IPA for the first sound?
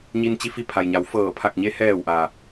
ɲ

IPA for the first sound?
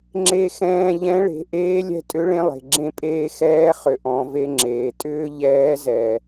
ŋ͡ǁ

